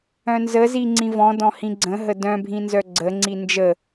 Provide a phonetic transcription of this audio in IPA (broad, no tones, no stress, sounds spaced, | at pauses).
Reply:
œ̃ n z ə z i ŋ͡ǀ ĩ v ɔ̃ d ɔ̃ h ĩ ɡ͡ǀ ə̃ ɦ ə d œ̃ bʱ ĩ n z œ ɡ͡ǀ ə ŋ͡ǀ i n d͡ʒ ə